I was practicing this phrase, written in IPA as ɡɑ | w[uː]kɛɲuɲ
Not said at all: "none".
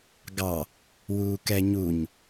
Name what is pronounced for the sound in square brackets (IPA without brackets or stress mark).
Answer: uː